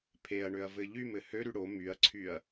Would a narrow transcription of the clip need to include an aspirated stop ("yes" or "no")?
yes